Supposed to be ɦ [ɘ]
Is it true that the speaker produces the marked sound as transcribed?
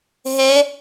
no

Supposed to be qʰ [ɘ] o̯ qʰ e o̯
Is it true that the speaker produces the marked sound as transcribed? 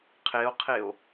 no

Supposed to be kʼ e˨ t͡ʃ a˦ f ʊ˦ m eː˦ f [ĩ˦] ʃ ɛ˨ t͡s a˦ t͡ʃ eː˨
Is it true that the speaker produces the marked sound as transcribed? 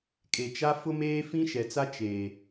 yes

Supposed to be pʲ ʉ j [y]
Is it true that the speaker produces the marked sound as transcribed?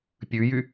yes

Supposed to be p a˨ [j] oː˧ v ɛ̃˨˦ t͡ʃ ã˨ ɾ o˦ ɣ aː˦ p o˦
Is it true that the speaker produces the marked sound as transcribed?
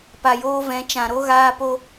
yes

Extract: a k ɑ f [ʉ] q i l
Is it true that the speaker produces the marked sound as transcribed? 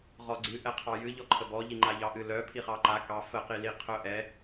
no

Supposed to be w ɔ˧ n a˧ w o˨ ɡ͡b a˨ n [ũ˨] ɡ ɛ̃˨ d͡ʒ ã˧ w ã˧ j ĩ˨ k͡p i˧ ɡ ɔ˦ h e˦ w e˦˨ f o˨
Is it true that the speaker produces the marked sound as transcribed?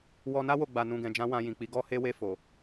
yes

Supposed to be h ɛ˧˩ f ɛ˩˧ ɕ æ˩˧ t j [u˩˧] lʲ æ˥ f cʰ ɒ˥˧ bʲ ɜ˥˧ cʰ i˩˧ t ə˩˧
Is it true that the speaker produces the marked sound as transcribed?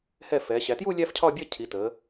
no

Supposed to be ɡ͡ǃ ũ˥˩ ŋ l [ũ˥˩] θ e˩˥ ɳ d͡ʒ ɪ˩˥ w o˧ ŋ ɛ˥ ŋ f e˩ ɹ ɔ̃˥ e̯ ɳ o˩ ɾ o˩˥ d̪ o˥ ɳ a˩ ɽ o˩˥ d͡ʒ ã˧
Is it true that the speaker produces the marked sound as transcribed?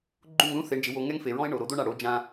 no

